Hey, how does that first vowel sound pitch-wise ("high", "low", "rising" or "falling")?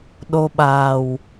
low